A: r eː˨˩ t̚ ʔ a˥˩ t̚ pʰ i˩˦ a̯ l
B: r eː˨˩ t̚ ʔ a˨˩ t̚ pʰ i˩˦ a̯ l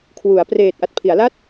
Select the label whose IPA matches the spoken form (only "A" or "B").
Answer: B